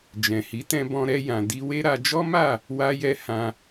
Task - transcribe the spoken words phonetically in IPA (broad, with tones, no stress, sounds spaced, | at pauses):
d͡ʒ ɛ̃˨ h i˨˦ t ɛ̃˧ b ɔ̃˧ ɾ ɛ˧ j ã˨ d i˧ w e˦ ɾ a˧ d͡ʒ ɔ˦ m a˦˨ | w a˧ j ɛ˧ h ã˧